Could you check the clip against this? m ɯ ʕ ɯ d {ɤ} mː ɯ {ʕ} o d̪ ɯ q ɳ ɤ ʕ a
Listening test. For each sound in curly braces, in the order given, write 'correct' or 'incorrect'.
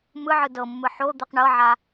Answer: correct, incorrect

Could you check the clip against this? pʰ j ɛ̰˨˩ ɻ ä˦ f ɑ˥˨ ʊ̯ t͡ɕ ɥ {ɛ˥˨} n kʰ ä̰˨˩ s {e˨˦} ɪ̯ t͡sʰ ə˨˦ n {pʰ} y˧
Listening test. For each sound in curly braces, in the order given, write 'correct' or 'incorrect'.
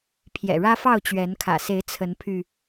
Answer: incorrect, correct, correct

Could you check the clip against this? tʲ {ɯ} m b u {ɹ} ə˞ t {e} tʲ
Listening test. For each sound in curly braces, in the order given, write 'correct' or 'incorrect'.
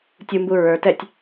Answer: incorrect, correct, incorrect

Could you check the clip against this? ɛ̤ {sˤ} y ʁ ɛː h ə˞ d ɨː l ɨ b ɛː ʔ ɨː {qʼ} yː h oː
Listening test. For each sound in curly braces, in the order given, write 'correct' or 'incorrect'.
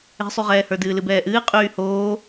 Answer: correct, correct

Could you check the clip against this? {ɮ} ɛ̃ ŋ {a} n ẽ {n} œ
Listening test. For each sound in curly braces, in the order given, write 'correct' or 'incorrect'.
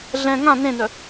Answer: correct, incorrect, correct

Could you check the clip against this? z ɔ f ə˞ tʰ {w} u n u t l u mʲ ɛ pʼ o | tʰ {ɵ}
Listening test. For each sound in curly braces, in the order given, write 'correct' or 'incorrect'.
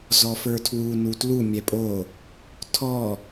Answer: correct, incorrect

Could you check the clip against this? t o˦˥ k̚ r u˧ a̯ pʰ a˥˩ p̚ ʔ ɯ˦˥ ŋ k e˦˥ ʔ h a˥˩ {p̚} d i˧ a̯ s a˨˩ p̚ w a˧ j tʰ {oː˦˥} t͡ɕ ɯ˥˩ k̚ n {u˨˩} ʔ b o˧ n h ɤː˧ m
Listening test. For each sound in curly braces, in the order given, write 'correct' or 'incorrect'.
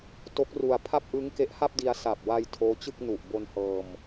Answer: correct, correct, correct

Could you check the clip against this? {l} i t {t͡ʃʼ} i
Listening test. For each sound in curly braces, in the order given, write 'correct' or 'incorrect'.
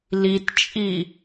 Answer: correct, correct

